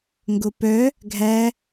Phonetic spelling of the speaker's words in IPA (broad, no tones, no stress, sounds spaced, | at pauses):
ŋ ɡ o p œ | ɡʱ æ